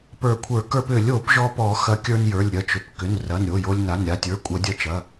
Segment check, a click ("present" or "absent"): absent